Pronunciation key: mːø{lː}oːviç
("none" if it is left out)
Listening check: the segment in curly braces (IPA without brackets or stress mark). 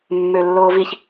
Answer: lː